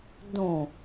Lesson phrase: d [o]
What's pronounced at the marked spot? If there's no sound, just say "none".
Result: õ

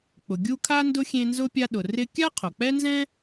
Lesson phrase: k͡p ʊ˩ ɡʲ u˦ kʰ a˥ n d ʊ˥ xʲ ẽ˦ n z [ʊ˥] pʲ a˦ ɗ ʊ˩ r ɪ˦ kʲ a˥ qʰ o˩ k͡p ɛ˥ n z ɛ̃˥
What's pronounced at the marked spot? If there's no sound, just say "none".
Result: ʊ˥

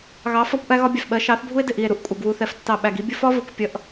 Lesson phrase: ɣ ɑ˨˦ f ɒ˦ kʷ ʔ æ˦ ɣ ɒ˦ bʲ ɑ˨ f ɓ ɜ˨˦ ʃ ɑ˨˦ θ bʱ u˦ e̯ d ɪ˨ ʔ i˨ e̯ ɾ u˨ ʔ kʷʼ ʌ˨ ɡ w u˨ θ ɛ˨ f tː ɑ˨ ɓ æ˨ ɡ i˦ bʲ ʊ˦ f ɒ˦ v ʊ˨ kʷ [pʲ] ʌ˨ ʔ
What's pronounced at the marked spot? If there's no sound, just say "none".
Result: pʲ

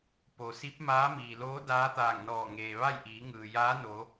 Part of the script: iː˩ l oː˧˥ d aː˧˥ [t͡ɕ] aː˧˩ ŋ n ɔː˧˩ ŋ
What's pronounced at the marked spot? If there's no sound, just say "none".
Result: t̪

